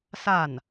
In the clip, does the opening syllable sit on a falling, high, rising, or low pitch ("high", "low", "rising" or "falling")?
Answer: falling